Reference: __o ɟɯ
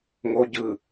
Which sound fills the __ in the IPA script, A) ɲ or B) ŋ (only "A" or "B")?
B